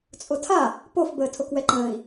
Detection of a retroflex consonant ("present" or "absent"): absent